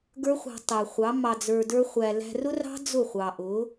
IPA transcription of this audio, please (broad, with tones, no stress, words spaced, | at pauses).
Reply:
ɡə˞˦χʷɑ̤˧tˤæ˨ χʷɑ˨˦ mɑ˧d͡zə˞˧də˞˦χʷæ˧ læ̤˧rʊ˦rɑ̤˦ d͡zʊ˦˨χʷɑ˨ʔʊ˨˦